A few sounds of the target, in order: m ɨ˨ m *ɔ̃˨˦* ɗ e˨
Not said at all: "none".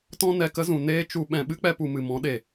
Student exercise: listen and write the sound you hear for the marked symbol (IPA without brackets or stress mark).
ɔ̃˨˦